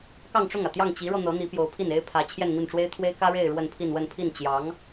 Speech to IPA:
k ɑ˥˧ ŋ ʈ͡ʂ ʊ˥˩ ŋ ä˩ t̪ j ɑ˥˩ ŋ t͡ɕ i˧˥ ɻ ɤ˧ n̪ ɤ˧˥ n̪ i˧˥ p j o˧˥ ʊ̯ pʰ i˥˩ n e˥ ɪ̯ pʰ ä˧˥ t͡ɕʰ j ɛ˥˧ n n̪ i˥˩ n ʈ͡ʂ w e˥ ɪ̯ t̪ʰ w e˥ ɪ̯ k ä˥ ɻ e˥˧ ɪ̯ ɻ w ə˥˧ n pʰ i˥˧ n w ə˥˧ n pʰ i˥˩ n t͡ɕ j ɑ˧˥ ŋ

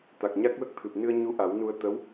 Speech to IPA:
t̪ a˨˩ k̚ ɲ a˦˥ k̚ w ə˦˥ k̚ t̪ʰ ɨ˨˩ p̚ n ɨ˧ ə̯ ɲ u˧ ʔ a˨˩˦ w n u˧ ə̯ t̪ ə˧˥ w

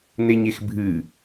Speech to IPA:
n e ɲ e x bʱ ɨ

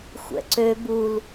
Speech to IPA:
xʷ ɛ̰ ǀ ø b u l

